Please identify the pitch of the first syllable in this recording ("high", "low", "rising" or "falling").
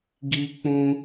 high